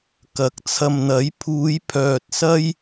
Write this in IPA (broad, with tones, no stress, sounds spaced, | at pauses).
k ɐ˨˥ k̚ t͡sʰ ɐ˨ m n̪ ɐ˨˥ j pʰ uː˨˧ j pʰ œː˨ t̚ s ɐ˥ j